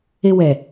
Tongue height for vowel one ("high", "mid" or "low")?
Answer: mid